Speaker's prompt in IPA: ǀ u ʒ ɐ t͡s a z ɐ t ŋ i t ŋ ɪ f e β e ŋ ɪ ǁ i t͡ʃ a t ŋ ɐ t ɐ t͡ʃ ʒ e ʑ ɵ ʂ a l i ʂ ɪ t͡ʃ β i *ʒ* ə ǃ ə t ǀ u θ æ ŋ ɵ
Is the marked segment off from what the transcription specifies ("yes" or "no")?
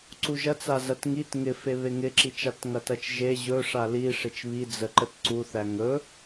yes